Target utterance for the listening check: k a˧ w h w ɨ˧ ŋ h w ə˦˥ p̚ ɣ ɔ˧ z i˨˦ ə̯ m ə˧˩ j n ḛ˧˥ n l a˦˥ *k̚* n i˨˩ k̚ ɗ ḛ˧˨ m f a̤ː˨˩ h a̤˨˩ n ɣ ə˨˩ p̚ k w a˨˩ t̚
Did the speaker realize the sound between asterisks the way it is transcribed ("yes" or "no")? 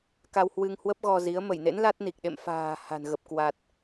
no